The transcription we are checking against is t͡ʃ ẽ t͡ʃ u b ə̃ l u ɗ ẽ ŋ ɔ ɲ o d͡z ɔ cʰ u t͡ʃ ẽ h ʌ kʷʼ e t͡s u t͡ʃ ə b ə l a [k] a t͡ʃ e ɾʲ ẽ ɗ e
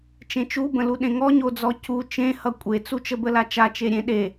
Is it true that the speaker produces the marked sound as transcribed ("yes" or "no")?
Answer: no